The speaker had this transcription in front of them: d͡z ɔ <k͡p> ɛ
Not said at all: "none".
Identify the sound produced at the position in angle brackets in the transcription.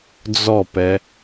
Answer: p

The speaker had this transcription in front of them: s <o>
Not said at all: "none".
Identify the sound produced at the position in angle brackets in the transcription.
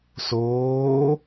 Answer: oː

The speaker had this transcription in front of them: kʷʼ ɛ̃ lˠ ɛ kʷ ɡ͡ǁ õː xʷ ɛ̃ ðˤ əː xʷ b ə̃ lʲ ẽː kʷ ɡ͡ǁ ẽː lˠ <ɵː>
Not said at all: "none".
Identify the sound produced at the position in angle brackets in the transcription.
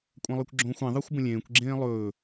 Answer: ɵː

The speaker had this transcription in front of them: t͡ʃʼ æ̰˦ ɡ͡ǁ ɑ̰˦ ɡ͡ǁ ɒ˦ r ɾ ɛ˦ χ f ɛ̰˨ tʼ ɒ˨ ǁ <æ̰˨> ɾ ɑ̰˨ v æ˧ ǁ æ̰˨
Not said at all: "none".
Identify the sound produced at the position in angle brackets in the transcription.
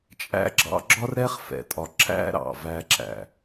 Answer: æ̰˦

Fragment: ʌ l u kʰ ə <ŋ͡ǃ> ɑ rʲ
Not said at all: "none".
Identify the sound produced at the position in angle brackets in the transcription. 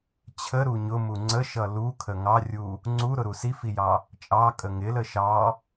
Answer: ŋ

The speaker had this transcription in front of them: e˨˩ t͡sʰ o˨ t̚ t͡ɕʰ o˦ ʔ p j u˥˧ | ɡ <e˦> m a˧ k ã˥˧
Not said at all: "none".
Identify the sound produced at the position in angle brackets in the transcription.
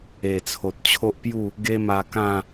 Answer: e˦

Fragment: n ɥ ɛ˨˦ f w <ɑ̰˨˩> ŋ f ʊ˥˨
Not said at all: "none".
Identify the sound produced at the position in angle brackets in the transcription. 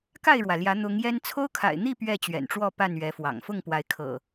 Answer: ɑ̰˨˩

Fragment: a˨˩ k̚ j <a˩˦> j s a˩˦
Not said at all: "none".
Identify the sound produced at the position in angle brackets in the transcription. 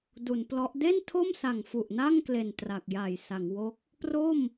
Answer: a˨˩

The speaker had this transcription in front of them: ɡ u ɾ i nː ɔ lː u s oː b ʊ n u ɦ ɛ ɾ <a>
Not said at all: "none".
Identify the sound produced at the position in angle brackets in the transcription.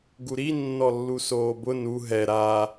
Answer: a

